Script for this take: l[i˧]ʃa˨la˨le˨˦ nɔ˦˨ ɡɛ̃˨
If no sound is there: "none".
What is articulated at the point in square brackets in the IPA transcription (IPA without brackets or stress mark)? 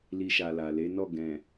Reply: i˧